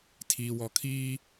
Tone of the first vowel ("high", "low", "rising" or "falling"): low